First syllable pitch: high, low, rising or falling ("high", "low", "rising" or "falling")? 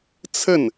falling